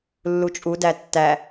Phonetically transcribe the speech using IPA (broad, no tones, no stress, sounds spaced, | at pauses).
lː u t͡ʃʼ u d æ tː æ